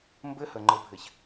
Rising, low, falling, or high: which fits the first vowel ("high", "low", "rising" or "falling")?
high